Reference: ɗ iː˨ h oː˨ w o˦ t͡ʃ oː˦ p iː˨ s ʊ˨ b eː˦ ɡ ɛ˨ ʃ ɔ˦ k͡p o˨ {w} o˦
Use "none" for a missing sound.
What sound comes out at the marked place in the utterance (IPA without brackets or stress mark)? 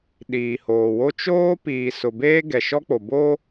b